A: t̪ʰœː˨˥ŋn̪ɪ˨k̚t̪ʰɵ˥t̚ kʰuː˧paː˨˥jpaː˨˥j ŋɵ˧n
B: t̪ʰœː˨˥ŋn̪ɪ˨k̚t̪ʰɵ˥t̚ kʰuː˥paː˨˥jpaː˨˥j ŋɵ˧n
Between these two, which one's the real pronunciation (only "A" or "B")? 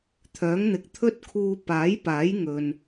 A